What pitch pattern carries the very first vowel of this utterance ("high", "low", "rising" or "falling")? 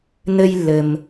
high